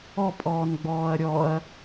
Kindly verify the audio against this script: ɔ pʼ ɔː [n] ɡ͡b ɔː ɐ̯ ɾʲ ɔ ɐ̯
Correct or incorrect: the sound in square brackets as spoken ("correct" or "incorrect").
correct